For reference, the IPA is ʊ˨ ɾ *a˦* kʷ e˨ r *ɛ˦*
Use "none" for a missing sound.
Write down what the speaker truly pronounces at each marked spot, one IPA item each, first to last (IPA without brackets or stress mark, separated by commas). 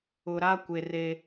a˦, e˦